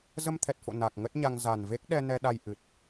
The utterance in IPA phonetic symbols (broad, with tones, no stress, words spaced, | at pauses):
zə˧mt̪ʰɛ˨˩t̚fo̰˧˨ na˨˩k̚ ŋə˦˥t̚ɲa˧ŋ za˨˩n ve˦˥k̚ ɗɛ˧nɛ˧ɗa˧j ʔɨ˨˩t̚